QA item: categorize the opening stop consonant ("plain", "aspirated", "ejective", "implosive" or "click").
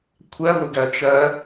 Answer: aspirated